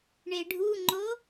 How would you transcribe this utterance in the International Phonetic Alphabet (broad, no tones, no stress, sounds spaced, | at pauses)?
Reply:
ɳ e ɖʱ u ŋ͡ǃ o